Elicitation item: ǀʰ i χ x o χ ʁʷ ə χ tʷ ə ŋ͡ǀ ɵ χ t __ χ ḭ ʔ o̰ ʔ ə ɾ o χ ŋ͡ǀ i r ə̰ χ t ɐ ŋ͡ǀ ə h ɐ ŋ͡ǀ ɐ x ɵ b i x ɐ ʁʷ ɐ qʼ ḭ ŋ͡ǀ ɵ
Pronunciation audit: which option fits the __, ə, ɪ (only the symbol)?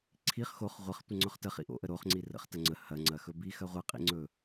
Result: ə